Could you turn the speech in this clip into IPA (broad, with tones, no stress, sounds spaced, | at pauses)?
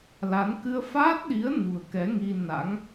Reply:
l a˨˦ n k ɨ˧ ə̯ f aː˦˥ t̚ ɗ i˨˦ ə̯ n ṳ˨˩ ə̯ k ɛ˨˦ ŋ i˧ n a̰˧˥ ŋ